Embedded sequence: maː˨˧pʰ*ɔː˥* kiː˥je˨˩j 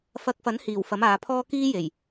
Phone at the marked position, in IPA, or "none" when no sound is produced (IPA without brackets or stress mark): ɔː˥